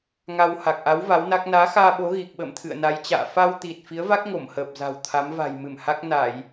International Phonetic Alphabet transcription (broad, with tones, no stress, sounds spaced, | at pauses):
ŋ a˧ w h a˨˩ k̚ ʔ a˨˦ w v a˨˦ w n a˦˥ k̚ n aː˨˦ x aː˧ ɓ o˨˦ ɣ i˨˩ k̚ ɓ ə̰ː˧˨ m t̪ʰ ɨ̰˧˨ ə̯ n a˨˦ j t͡ɕ a̰ː˧˨ f a˧ w t̪ i˨˩ t̚ f i˨˦ ə̯ v a˦˥ k̚ ŋ o˧˩ m h əː˨˩ p̚ z a̤˨˩ w t̪ʰ a˨˦ m v a̤˨˩ j m ɨ˧˩ m h a˦˥ k̚ n a˧˩˨ j